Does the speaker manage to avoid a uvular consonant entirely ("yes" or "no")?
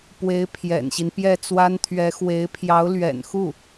yes